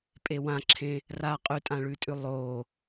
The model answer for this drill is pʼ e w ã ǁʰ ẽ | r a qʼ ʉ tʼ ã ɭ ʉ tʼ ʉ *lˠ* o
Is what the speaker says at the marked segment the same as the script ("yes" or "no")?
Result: yes